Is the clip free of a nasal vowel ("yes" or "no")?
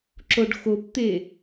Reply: yes